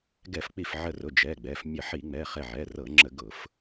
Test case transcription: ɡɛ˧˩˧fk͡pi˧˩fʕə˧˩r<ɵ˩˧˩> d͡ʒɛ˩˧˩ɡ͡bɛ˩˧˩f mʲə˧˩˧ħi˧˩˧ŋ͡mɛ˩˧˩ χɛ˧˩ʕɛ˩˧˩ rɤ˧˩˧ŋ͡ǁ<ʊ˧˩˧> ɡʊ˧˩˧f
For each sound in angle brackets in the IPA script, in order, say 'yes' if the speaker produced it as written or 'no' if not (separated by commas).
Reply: no, no